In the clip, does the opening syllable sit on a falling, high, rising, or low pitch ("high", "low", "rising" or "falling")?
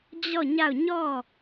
falling